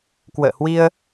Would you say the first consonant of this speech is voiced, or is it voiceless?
voiceless